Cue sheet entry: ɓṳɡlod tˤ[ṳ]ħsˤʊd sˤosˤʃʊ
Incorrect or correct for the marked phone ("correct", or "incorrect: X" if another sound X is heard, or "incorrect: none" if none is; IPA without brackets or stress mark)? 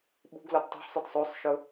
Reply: correct